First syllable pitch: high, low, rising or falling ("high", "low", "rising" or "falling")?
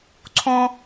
high